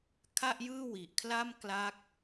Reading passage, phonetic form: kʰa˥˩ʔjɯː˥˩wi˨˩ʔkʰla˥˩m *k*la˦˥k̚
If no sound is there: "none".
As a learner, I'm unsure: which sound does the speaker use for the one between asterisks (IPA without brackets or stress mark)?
k